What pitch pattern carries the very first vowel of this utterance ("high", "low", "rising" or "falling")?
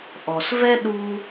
low